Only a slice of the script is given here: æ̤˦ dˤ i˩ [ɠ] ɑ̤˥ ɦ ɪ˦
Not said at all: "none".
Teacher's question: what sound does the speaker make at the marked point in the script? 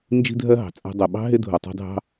ɓ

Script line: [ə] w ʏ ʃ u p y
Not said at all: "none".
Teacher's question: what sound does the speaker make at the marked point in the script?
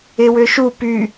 ɪ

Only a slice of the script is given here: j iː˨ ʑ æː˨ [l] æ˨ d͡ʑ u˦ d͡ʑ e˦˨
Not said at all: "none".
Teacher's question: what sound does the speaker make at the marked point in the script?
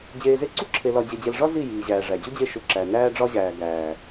ʐ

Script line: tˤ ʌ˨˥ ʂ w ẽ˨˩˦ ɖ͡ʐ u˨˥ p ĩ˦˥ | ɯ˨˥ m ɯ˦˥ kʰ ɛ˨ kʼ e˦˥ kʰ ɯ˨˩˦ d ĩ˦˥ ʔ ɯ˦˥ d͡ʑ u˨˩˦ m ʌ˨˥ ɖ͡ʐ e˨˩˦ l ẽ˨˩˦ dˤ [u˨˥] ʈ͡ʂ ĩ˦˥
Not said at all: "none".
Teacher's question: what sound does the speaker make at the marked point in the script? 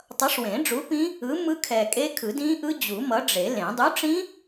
u˨˥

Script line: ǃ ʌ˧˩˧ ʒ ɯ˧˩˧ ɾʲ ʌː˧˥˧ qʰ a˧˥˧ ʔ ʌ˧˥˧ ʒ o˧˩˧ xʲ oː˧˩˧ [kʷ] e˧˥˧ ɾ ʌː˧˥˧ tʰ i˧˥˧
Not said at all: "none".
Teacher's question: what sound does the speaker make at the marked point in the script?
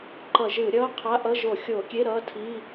kʲ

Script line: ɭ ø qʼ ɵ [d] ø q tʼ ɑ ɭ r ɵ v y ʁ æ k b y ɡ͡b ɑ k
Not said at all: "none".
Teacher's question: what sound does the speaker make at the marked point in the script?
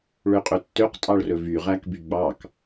tː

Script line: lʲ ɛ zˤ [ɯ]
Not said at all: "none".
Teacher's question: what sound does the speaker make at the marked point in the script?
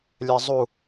u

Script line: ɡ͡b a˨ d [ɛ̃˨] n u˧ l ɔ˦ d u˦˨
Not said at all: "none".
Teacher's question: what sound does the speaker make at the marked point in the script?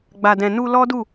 ɛ̃˨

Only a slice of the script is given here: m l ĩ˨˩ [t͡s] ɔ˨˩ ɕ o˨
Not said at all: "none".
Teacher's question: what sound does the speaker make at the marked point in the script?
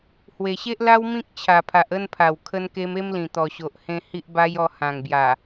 t̪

